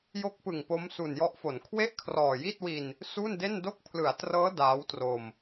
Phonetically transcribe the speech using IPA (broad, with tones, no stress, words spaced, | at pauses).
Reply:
jo˦˥k̚pɯ˨˩ŋ po˦˥msu˨˩njɔ˦˥ʔfo˩˦n kʰwe˥˩ʔkʰrɔː˨˩ji˥˩t̚wi˧n | su˥˩nde˥˩ndo˥˩k̚ pʰlɯ˩˦a̯trɤː˦˥ daː˦˥wtro˧m